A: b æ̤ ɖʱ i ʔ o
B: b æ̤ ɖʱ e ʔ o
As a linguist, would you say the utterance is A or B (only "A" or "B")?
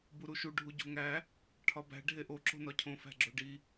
B